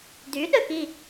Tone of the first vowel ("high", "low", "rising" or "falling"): rising